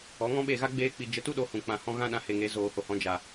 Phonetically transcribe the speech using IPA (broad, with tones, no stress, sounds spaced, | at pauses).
ɔ˨˦ ŋ ɔ̃˦ ɓ e˦˨ ɣ a˦ ɡ͡b eː˦ k͡p i˧ d͡ʒ ə˨˦ t u˦ ɗ o˧ h ũ˨ k͡p ã˨ h ɔ̃˧ ɣ ã˦ ɗ ã˧ h e˨ ŋ e˨˦ z oː˨ h o˨ h ɔ̃˨˦ d͡ʒ a˨